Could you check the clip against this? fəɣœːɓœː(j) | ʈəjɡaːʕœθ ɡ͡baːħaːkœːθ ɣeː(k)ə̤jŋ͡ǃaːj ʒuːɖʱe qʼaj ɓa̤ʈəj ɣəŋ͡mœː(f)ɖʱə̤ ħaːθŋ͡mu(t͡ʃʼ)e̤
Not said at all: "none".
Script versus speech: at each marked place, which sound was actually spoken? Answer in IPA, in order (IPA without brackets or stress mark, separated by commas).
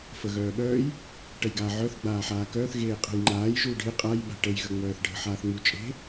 j, qʼ, θ, t͡ʃʼ